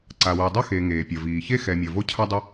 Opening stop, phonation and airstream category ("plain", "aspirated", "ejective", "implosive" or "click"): click